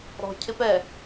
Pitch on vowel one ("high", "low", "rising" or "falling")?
low